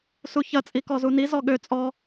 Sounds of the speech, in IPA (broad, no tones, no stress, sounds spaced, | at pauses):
s u ç ɐ t͡sʼ i k ɔ z u n i z ɔ ɠ ø t͡sʼ ɔ